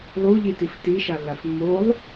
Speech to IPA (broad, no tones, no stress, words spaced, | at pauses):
lˠuʎitif tiʃalːaf mːolˠ